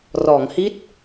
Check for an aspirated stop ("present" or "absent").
absent